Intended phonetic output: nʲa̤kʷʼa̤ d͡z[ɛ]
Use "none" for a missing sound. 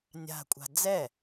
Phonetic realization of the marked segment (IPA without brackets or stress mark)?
ɛ